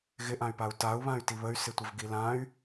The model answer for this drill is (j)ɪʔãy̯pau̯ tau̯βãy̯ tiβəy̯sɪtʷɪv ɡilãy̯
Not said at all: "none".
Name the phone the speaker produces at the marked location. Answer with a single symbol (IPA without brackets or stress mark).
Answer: ɣ